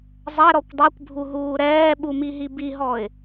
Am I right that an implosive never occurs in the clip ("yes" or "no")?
no